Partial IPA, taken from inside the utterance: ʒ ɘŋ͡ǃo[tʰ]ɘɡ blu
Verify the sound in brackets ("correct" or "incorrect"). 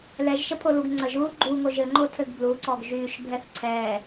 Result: correct